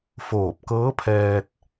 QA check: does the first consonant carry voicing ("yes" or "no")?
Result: no